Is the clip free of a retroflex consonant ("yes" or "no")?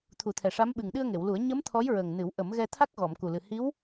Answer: no